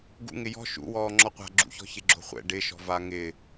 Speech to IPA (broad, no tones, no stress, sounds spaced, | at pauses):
ɡ ṵ ŋ ɪ j ɔ̤ ʃ ṵ w ɔː ŋ͡ǁ ɔ qʷ a̤ ɡ͡ǁ ṵ ç ɔ̤ ç ɪ ɡ͡ǁ o̤ χʷ ɛ̰ ɖ ɪ ʃ ɔ̤ v a ŋ ɪ